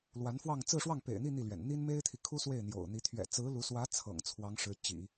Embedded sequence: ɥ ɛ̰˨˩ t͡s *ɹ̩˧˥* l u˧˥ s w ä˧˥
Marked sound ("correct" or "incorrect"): correct